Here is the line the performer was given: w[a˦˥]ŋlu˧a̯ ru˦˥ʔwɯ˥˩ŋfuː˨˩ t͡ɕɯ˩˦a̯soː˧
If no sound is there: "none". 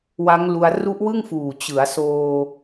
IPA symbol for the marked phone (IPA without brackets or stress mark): a˦˥